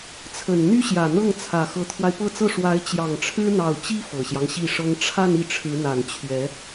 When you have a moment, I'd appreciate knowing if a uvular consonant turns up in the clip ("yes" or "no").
no